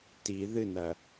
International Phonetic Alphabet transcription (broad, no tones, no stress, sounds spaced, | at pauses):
t i ð ɨ n ɐ